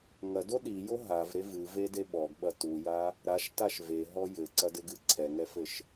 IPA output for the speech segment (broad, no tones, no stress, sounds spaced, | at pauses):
ŋ ɐ d o ɗ i j o ɦ a v ɾ e v ɨ v e d e ɓ ɔ ɡ ɓ ɐ t u j a | ɾ a ʃ t a ʃ v e ɦ ɔ j ɘ ǀ ɐ d ɘ ɡ ɨ ǀʰ ɛ ŋ ɛ f ɘ ʃ